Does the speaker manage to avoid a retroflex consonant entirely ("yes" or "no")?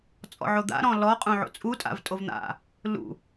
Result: yes